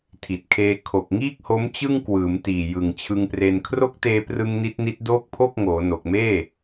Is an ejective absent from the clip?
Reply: yes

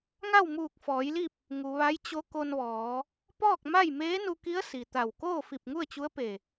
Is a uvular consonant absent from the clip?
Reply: yes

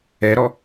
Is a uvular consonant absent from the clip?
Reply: yes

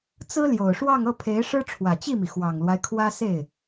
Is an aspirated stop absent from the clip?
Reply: no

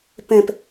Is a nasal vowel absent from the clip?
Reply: no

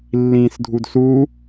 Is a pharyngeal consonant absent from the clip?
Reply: yes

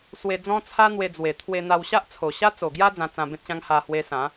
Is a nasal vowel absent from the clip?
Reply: no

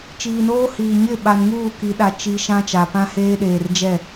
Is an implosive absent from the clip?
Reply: no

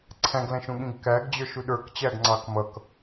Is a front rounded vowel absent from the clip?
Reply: yes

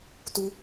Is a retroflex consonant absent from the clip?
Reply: yes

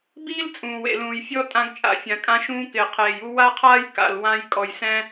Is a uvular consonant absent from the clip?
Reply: no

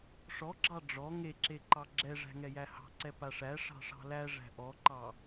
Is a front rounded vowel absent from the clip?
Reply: yes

